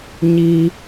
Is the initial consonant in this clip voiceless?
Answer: no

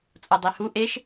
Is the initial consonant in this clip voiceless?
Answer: yes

